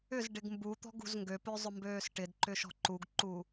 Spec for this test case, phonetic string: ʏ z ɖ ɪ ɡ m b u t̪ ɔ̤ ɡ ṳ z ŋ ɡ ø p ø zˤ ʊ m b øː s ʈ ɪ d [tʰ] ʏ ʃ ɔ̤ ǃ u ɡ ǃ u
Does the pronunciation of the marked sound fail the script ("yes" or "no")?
yes